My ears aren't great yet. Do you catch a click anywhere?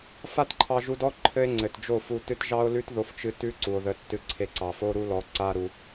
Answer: yes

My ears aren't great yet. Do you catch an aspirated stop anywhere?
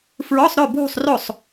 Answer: no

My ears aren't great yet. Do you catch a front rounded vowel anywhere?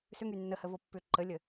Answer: yes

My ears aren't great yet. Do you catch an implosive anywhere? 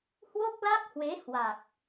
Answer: no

